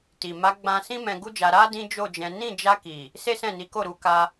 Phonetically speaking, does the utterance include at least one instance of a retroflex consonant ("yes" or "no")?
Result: no